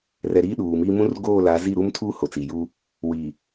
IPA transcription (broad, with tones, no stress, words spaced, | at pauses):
rɛ˨ɾiː˦ ɗuː˨miː˦ mũ˦rɡoː˦˨la˨˦ zi˦˨ɾu˦mtʰuː˦ ho˨t͡si˨juː˦ | wiː˨